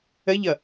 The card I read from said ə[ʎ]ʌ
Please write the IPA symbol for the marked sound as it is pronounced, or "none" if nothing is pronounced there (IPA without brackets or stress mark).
ʎ